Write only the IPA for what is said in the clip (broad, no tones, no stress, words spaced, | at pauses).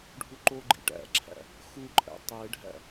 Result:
ɖʱuǃoɡ͡ǃḭ ʈæ̰ǁʰæ̰ | xuǃʼæ̰ tˤeɖʱæ̰